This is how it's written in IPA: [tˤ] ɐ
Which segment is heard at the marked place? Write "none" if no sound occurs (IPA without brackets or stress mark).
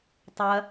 tˤ